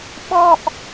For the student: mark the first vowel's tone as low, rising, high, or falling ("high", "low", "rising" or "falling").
high